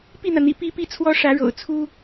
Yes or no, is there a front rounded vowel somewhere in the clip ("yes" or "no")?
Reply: no